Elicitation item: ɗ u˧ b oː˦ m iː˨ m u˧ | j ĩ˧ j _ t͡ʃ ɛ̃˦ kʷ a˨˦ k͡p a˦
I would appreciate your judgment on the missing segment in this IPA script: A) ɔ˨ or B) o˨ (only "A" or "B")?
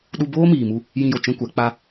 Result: B